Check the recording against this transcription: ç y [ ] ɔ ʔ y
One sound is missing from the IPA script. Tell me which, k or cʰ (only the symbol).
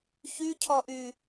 cʰ